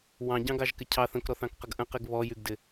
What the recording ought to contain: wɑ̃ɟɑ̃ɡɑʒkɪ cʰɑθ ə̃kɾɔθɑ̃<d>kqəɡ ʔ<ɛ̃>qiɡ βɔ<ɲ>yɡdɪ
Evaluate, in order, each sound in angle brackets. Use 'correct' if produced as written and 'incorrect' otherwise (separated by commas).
incorrect, incorrect, incorrect